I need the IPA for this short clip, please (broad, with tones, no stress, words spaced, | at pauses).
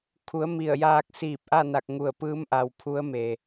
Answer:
kʰu˩˧ə̯ mi˧˩ə̯jaː˧k̚ siː˧˩p̚ʔa˥˨na˧˩k̚ ŋu˧˩ə̯pɯː˧˥mʔa˩w pʰu˧˥ə̯me˩